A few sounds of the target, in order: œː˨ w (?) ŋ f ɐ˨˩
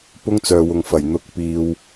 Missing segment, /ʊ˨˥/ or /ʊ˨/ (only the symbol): ʊ˨